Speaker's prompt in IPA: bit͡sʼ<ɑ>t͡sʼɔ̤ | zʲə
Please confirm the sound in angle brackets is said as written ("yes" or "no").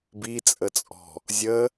no